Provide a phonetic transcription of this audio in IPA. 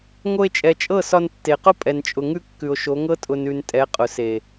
ŋ o˧ e̯ t͡ʃʼ ɛ˨ t͡ʃʼ ɤ˦˨ s ɒ˧ n tː e˨ q ʊ˦ pʼ ɛ˨ n t͡ʃʼ ʊ˨ ŋ ʉ˧ kː ʉ˨ o̯ ʃ o˨˦ ŋ ɤ˦ tʼ ʊ˨ n ʉ˨ n tʼ ɛ˨˦ qʼ ʊ˨ s e˨

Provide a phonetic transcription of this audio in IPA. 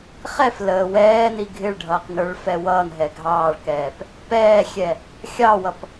χ ɛ f l əː w ɛː n i ɡʱ ɪ ɭ ɖʱ ʌː q n ə˞ ɭ f ɛ w ʌː n ɦ ɛ ɡʱ ɑː ɭ k ɛː p | p ɛː xʲ ɛ | xʲ ɑ w ʌ p

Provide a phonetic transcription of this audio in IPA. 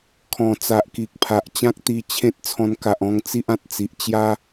kʰ ɔ̃˨˩ t͡s a˨ ʔ k i˨ k̚ pʰ a˨ ʔ t͡ɕ ã˦ k̚ t̪ i˧ t͡ɕʰ ẽ˦ t̚ t͡sʰ ɔ̃˧ n k a˨ ʔ ɔ̃˧ ŋ t͡s i˦ ʔ ã˨ t̚ t͡s i˨ ʔ t͡ɕ j a˦

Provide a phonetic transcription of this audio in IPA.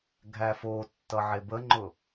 ɡʱ æ f o tː ʌ ʕ e b ə ŋ͡ǃ ʊ

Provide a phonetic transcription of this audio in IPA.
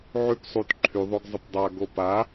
ʕ y p sˤ u t ǃʰ y ðˤ o ɡ zˤ ɪ p dˤ a ɡ o p a

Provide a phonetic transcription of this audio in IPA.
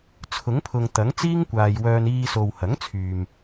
t͡sʰ ʊ˨˥ ŋ pʰ ʊ˨ ŋ t̪ ɐ˨˥ ŋ t͡s iː˥ ŋ kʷ aː˨ j w œː˧ n iː˧ s o˨ w h ɐ˨˥ ŋ t͡sʰ yː˨ m

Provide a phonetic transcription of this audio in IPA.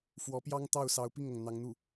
f w ɔ˧˥ p j ɑ˥ ŋ t̪ ɑ˥˩ ʊ̯ s ɑ˧˥ ʊ̯ p i˥˩ ŋ ɤ˩ ŋ n̪ ɑ˧˥ ŋ n̪ u˥˩

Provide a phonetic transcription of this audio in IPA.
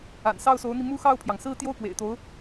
a̰˨˩ n s ɑ˥˩ ʊ̯ s o˧˥ ʊ̯ n̪ i˧ m u˥ x ɑ˥˩ ʊ̯ pʰ j ɑ˩ ŋ s ɹ̩˥˧ t̪ j o˥˩ ʊ̯ k w ḛ˨˩ ɪ̯ t̪ o˧˥ ʊ̯

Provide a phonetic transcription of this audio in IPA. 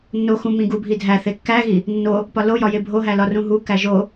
nː o x ũ m ĩ ɡ u bʱ i dʱ æ θ e kː æ ɣ i | nː o | p ɒ l o j ɒ j e bʱ o ɦ æ l ɒ r ũ ɦ u k æ ʒ o

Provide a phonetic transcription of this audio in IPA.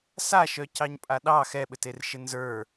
s a ʃ œ c ɑ ɲ pʼ a ɗ ɑ x ɛ ɓ ɘ t e r ʃ ɘ n z ə˞

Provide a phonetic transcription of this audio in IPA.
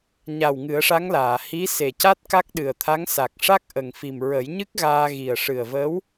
ɲ a˨˩ w ŋ ɨ˨˩˦ ə̯ ʂ a˧˥ ŋ l aː˨˩˨ h i˧˥ s e˨˩ c a˦˥ t̚ k a˦˥ k̚ ɗ ɨ˨˩ ə̯ t̪ʰ a˧˥ ŋ s a˨˩ k̚ ʂ a˦˥ k̚ ʔ ə˨˩ ŋ f i˨˩ m ɹ ə˨˩˦ j ɲ ɨ˦˥ k̚ ɣ aː˧ ɣ i˨˩ ə̯ ʂ ɨ˨˩ ə̯ v ə˧˥ w

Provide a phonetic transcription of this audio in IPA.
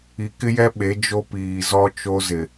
i˨ k ɪ˦ j ɛ˦ ɓ e˨˦ d͡ʒ o˦ p iː˨ z ɔ˦ t͡ʃ o˦ z ɪ˨

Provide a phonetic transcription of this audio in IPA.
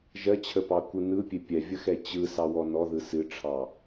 ʒ ɜ t͡ɕʰ ə p ɑ kʷ ɯ n ɯ pʲ e pʲ ɛ vʲ ə x ɛ t͡ɕ ɯ s ɑ w ɔ n ɔ ð ɯ s ɨ ʈ͡ʂʰ ɑ

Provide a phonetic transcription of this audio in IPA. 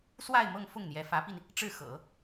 s w a˥˧ ɪ̯ m ɤ˥˧ ŋ f ʊ˥˩ ŋ n̪ j ɛ˧˥ f ä˧˥ p i˧ n | ʈ͡ʂ ɻ̩˥˩ x ɤ̰˨˩˦

